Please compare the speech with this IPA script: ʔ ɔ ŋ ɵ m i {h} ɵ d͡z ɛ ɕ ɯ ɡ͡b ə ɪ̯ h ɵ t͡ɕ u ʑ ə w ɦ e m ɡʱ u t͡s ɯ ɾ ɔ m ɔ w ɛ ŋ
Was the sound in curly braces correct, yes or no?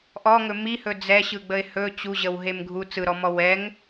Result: yes